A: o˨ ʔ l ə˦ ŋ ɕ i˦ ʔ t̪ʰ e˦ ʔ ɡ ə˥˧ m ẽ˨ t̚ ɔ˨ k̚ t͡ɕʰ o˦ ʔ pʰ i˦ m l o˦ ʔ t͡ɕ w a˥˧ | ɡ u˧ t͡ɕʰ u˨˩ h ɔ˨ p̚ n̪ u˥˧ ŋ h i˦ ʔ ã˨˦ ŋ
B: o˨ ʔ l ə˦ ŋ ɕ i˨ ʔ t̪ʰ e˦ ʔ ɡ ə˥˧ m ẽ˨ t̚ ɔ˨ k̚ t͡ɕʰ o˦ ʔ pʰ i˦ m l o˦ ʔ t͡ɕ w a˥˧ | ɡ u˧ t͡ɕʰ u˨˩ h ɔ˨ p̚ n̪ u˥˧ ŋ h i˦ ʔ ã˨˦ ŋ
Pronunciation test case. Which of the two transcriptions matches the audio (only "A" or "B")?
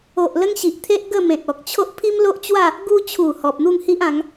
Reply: B